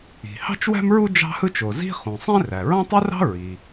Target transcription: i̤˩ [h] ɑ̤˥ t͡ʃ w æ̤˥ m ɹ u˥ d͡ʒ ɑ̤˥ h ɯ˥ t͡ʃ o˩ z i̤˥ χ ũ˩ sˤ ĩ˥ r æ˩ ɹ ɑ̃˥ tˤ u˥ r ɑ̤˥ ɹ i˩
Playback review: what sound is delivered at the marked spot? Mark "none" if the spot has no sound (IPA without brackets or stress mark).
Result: h